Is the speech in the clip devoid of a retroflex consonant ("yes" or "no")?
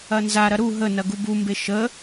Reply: yes